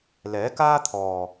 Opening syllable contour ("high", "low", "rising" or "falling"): rising